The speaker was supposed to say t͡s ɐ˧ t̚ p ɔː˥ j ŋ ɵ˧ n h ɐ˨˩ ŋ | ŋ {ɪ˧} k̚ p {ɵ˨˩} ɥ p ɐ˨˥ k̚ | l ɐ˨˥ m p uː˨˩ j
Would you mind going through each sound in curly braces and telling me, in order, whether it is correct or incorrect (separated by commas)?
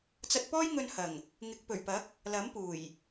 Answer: incorrect, correct